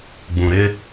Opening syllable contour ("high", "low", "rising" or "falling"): low